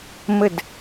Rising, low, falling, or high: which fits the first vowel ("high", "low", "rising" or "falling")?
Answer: falling